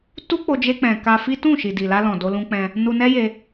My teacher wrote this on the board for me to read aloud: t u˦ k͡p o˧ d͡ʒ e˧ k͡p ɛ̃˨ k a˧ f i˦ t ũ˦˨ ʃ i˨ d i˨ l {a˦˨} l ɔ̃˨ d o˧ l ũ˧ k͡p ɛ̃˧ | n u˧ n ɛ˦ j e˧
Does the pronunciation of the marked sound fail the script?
yes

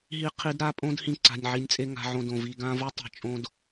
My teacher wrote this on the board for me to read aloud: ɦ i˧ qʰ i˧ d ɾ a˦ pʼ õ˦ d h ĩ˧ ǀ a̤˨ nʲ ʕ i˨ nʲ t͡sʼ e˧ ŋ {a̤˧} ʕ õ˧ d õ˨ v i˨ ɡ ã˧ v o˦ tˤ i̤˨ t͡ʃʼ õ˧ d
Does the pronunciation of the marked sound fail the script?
no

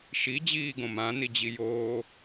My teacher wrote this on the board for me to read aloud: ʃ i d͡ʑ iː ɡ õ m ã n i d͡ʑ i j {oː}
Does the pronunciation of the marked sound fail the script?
no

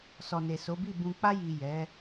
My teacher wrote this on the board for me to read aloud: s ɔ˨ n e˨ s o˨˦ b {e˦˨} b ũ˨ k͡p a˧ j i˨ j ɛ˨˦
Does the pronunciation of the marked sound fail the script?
yes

